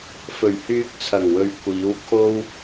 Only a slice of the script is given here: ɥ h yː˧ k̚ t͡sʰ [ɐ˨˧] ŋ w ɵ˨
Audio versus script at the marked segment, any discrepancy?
yes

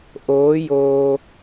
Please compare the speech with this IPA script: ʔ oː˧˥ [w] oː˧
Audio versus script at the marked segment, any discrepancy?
yes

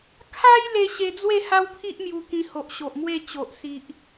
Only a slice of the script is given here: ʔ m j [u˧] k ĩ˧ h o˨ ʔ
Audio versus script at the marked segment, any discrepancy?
no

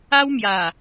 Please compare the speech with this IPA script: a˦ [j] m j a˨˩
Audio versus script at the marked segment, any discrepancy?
yes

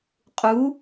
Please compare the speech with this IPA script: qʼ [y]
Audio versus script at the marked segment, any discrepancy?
yes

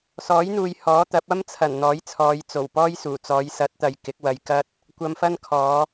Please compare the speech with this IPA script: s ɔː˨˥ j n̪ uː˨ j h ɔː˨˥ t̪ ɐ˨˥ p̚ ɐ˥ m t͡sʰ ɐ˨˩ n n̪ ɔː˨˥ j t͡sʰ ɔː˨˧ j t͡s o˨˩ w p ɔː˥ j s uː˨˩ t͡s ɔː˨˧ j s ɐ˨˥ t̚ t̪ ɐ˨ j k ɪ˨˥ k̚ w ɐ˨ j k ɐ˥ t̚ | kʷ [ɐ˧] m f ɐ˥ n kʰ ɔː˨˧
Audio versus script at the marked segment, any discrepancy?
no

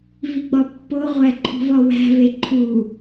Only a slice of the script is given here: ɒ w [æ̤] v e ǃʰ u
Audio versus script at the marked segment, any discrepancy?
no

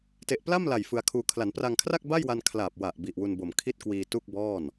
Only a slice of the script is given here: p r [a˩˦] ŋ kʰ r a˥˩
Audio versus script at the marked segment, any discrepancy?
yes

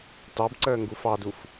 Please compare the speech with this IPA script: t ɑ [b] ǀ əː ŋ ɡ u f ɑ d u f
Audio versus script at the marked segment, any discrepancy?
no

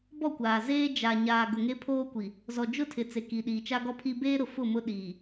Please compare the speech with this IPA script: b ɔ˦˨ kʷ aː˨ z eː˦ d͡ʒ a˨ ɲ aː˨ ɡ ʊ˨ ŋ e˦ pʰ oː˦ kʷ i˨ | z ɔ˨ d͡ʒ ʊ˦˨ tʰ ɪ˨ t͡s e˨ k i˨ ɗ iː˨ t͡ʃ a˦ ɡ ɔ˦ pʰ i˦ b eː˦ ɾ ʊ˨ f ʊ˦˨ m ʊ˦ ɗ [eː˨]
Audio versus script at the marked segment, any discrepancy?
yes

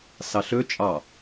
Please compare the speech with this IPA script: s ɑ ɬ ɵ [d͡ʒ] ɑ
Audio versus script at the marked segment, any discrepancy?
yes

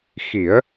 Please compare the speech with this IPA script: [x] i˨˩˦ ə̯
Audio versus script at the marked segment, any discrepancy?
no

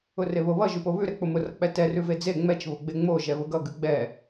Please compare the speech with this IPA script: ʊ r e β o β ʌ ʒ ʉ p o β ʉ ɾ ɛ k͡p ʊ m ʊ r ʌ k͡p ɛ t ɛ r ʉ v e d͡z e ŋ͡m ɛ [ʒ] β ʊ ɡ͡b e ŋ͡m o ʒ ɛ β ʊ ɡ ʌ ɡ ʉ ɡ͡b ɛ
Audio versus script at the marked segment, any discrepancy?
yes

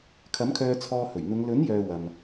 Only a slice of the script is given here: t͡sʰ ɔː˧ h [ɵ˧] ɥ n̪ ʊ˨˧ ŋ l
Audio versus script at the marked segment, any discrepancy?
yes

